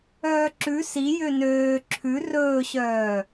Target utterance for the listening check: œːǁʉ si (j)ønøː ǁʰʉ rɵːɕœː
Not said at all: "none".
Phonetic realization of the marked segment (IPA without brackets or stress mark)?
j